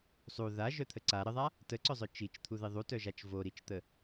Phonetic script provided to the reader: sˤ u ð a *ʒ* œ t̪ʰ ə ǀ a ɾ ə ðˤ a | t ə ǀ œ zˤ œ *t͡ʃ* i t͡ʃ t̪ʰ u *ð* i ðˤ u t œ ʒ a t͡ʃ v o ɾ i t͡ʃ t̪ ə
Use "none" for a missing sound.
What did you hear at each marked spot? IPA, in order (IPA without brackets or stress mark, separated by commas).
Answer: ʒ, t͡ʃ, ð